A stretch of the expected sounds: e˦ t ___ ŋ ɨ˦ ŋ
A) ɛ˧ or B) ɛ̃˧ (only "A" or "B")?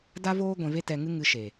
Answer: A